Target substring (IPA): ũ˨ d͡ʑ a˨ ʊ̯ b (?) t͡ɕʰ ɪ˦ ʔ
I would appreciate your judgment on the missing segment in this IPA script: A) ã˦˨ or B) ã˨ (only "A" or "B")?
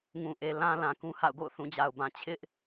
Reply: B